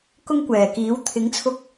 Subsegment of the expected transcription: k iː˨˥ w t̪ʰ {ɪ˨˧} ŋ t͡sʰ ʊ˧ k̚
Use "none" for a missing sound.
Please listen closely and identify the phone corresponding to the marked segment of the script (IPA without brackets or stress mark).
ɪ˨˥